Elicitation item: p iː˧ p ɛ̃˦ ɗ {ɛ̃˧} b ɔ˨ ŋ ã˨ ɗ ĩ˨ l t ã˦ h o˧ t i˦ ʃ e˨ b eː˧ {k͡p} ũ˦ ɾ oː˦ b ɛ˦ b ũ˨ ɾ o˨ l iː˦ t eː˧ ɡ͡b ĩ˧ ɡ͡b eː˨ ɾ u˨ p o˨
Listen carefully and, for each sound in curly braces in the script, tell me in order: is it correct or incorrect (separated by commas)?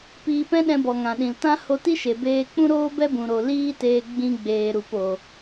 correct, correct